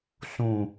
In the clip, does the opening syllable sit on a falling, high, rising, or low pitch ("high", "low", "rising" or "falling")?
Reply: low